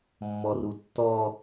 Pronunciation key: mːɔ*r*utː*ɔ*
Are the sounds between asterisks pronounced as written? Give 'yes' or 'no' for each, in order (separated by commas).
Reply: yes, yes